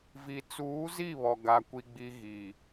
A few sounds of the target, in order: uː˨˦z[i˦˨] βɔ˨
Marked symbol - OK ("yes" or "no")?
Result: yes